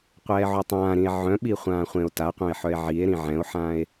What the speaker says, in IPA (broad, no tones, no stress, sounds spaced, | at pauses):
qʷ ɛː ʕ o tˤ ãː ɾ ĩ e̯ ʕ œ̃ ɓ i χʷ ãː χʷ ẽ o̯ t a qʷ œ̃ e̯ ħ œ e̯ ʕ i e̯ ɾ ĩ ʕ ɛ̃ o̯ ħ ãː e̯